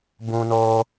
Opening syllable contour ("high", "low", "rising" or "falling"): high